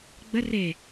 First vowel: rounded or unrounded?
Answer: unrounded